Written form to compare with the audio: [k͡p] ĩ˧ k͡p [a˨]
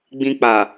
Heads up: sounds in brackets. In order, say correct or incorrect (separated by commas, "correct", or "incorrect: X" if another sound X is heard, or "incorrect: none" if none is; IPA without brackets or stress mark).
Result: incorrect: ɡ͡b, correct